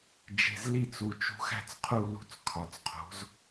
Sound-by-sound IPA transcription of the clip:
d͡ʒ e̤˩˧˩ z l i˦˨ t͡s u˩˧˩ t͡ʃ ṳ˨˥ x æ̤˦˨ t͡s qʰ u˦˨ l ṳ˦˨ t͡s kʰ ɒ˩˧˩ t͡s qʰ o̤˨˥ z

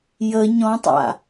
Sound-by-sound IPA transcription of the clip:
j ə ɲ ɔ̃ tˤ a̰

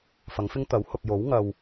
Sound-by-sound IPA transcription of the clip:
f ɐ˨˥ ŋ f ɪ˥ ŋ t̪ ɐ˨˥ w h ʊ˨ k̚ j o˨˥ w ŋ ɐ˨ w

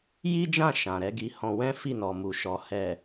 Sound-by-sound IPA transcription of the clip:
j i˦ d͡ʒ ã˦˨ ʃ ã˨ ɾ ɛ˨˦ ɡ i˧ h ɔ̃˧ w ɛ̃˦ f i˦˨ n ɔ˨ m u˨ ʃ ɔ˨ h ɛ˨

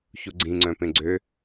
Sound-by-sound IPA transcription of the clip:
ç u ɡ͡ǀ ĩ ŋ͡ǀ œ̃ p ẽ ɡ͡ǀ ø

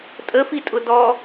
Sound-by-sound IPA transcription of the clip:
tʼ ə f i tʼ ʊ d ɔ

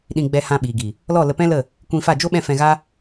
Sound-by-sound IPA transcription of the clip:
ɗ ĩ˧ ɡ͡b ɛ˧ h ã˧ ɓ iː˨ ɡ i˨ | l ɔ˦˨ l ə˧ p ɛ̃˦ l ə˦˨ | kʷ ĩ˧ f a˦˨ d͡ʒ o˦ ɓ ɛ̃˦˨ f ɛ̃˧ ɣ a˦

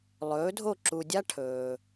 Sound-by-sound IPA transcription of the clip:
lˠ ɵː˩˥ dʱ o˥˩ ǁ u˧ dʲ a˥ ʈʰ ɵː˩

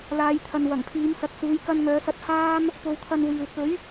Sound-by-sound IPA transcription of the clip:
l aː˨˧ j t̪ʰ ɐ˨ n w ɐ˨˩ ŋ pʰ iː˨˧ m s ɐ˨ k̚ s uː˨˧ j k ɐ˧ n ŋ œː˨˧ s ɐ˧ t̚ h aː˥ m | p o˧ w t̪ʰ ɐ˧ n w iː˨ w k ɵ˨˥ ɥ

